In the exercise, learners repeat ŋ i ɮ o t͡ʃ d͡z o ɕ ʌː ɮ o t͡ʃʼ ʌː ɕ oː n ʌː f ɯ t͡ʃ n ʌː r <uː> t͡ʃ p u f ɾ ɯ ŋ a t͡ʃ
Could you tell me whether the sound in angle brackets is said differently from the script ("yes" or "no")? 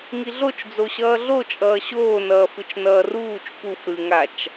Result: no